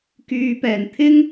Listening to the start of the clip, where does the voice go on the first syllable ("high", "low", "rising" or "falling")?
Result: low